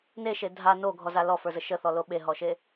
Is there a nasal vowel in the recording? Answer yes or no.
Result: no